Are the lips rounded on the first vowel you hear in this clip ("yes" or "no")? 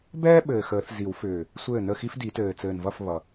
no